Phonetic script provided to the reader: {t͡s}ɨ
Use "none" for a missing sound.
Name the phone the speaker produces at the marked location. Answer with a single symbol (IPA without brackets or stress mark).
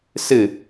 s